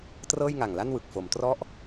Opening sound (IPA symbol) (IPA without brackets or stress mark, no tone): t